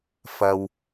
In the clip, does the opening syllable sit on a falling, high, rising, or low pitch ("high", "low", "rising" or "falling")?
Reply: low